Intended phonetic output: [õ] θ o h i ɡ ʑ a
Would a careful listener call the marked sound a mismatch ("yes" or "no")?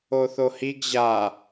yes